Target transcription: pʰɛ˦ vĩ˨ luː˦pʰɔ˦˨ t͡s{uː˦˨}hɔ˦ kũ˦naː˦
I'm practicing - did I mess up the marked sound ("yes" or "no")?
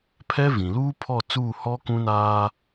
no